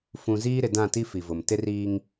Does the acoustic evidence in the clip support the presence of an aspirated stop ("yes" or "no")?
no